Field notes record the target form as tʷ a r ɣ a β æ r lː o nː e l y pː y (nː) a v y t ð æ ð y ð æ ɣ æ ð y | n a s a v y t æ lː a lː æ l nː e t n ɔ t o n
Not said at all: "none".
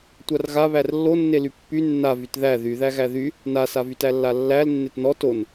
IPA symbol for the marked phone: nː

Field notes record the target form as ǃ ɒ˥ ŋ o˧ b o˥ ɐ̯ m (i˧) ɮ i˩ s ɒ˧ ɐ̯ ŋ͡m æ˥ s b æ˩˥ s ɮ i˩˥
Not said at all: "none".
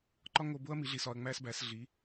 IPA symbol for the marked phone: i˩˥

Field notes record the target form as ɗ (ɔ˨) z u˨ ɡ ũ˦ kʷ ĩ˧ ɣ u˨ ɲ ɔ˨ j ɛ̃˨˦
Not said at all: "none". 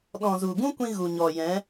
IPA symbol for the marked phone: ɔ̃˨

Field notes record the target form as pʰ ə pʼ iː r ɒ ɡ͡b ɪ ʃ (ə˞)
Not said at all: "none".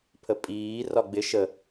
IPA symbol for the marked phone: ə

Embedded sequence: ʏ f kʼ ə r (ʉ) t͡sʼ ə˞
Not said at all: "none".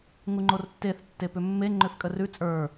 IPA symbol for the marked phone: ʉ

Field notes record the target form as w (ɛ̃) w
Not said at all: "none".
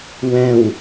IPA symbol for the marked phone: ɛ̃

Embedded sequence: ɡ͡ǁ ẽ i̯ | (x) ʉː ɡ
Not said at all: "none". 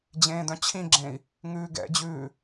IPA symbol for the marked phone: ŋ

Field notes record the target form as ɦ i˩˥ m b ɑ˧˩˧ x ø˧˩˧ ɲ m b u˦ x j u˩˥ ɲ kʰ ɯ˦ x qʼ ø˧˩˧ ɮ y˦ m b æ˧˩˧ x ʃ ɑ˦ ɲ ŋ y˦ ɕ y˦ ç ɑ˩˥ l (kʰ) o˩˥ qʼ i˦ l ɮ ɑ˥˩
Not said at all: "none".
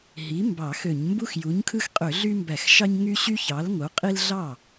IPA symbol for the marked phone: ŋ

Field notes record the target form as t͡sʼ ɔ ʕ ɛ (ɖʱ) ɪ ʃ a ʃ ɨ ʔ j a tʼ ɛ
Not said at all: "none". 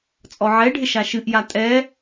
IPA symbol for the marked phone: ɖʱ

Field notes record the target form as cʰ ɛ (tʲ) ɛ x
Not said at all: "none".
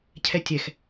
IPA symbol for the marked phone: tʲ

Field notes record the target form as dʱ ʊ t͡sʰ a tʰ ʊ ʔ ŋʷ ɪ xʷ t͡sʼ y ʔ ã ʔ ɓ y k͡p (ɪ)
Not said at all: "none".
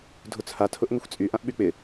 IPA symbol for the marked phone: ɪ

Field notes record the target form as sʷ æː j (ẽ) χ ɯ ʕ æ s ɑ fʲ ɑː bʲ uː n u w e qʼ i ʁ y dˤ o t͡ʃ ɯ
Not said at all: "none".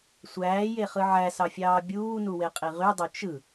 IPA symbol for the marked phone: e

